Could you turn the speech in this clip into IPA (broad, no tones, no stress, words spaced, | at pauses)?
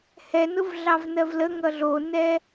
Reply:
hɛnʊv ɮɑvnɜvləŋʌ ɮonɛ